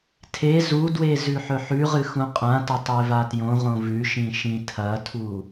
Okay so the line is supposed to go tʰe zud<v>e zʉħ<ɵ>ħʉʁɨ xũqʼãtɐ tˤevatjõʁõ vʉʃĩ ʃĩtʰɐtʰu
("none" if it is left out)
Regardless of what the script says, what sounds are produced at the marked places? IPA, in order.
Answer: w, ɵ

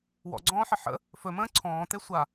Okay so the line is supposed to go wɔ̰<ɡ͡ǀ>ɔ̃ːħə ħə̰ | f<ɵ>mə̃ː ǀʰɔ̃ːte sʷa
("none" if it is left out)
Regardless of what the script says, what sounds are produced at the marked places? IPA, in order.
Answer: ɡ͡ǀ, ɵ

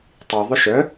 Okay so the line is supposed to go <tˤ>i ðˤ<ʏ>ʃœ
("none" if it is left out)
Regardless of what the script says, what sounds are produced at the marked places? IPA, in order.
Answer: tˤ, ʏ

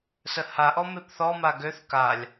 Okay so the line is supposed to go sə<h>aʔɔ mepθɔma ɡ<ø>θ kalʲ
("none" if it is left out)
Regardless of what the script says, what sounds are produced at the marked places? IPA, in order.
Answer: h, ø

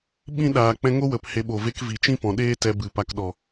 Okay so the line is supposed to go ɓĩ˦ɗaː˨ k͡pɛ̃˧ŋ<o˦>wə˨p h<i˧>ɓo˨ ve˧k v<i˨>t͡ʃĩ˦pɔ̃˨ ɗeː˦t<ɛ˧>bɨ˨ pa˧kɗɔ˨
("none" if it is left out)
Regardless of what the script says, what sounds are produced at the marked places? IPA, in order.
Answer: o˦, e˧, i˨, ɛ˧

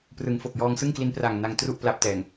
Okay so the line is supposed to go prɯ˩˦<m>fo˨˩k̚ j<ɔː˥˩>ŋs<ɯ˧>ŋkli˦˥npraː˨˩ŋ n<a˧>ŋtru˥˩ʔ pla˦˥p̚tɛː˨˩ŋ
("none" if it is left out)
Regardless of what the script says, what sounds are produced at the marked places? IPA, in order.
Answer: ŋ, ɔː˧, ɯ˥˩, a˧

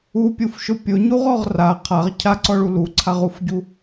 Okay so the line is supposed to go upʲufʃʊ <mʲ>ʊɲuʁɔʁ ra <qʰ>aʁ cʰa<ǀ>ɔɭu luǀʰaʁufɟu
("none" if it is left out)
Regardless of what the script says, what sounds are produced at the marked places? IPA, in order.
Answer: pʲ, qʰ, ǀ

